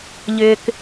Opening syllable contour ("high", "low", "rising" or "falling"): low